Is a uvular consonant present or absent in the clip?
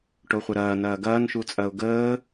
present